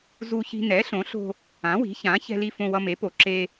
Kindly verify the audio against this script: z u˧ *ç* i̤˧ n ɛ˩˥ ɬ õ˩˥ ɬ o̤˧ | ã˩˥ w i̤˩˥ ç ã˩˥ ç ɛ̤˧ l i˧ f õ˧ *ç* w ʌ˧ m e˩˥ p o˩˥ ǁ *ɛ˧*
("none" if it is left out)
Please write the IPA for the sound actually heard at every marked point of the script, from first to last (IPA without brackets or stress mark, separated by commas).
ç, none, e˧